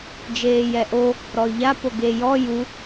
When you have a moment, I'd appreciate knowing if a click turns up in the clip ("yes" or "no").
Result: no